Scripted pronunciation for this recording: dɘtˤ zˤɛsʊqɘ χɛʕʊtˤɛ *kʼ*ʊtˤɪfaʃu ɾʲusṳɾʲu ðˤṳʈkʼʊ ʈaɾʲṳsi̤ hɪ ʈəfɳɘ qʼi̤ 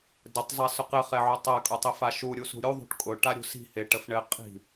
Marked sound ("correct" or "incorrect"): correct